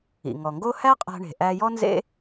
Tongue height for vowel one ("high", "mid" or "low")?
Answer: high